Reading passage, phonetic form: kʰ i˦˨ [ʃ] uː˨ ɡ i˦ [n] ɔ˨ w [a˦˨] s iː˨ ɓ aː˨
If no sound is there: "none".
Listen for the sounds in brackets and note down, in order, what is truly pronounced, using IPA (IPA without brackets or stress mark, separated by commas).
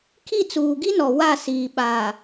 t͡s, n, a˦˨